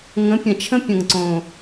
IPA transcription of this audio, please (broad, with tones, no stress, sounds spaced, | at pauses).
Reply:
ŋ ə̃˨˥ pʲ ə̃˨˩ t͡ʃʰ ə̃˦˥ pʲ ə̃˨˩ ŋ ǀ õ˨˩